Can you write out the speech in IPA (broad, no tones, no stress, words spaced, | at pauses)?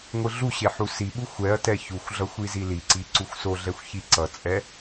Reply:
ŋʷɯɮuɕe ħusiɓu xʷɛɐ̯tɛ çuxʷɮʌ xʷiziliǀi ǀuxʷsoɮɛxʷ çiǀʌt͡sʼɛ